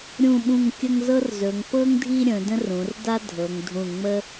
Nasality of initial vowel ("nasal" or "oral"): nasal